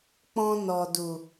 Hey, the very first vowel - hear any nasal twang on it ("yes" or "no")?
yes